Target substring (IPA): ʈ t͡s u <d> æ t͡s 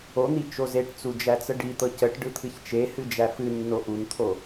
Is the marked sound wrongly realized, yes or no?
yes